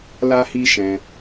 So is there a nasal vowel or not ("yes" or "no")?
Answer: yes